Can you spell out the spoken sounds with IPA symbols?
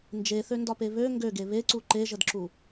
n d͡ʒ e θ ø n d ɒ p e β ø ŋ ɡ ø ɡ e β e ǀ u ǃ e ʒ ə d ǁ u

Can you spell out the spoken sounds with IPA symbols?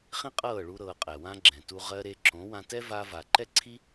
χ ĩ˦ qʼ ɤː˦˨ ɭ u˧ ɾ ɤː˧ qʼ ɛ˨ w ã˦ ɡ͡ǁ ɛ̃˨ t u˧ ʁ ɜ˧ ɾ e˧ ǁ õ˨˦ w ã˧ t ɛ˦ v a˧ v a˨ ǃ ɛ˦ ǀʰ i˦

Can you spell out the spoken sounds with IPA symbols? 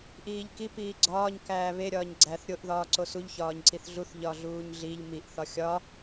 ʔ iː ʎ k i p iː ɡ͡ǀ ɒː ɲ k æː β e ɾʲ ɒː ɲ ɡ͡ǀ æ θ ɾʲ o ʔ ð ɒː ǀ o s u ʎ ç ɒː ɲ ǀ i θ ɮ u θ ʎ ɒ ɮ uː ɲ ɮ i ʎ m i ʔ θ ɒ xʲ ɒ

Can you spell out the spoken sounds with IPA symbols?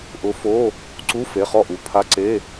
ʔ ʊ˨˦ f o˧˥˧ | ǀ u˧˥˧ f e˩˧˩ χ ɔ˥˩ ʔ u˩˧˩ pʰ a˧˥˧ ǀ e˧˥˧

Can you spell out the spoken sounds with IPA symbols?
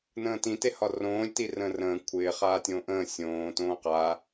n ə̃ː t ĩ t e h ɒ r õː lʲ t i r ə̃ː r ə̃ː kʷʰ ɪː χ aː tʲ õː ʔ ə̃ː sʲ õː t õː q a

